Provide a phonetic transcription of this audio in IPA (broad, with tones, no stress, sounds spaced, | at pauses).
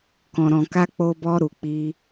k ɔ̃˨ ɾ ɔ̃˨ k a˧ k͡p o˧ b ɔ˧ ɾ u˨ k͡p i˧